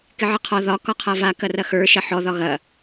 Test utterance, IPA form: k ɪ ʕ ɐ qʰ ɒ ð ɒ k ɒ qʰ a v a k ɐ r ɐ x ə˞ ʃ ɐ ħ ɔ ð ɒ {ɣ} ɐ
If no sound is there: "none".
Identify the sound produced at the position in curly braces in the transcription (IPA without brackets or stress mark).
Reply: ɣ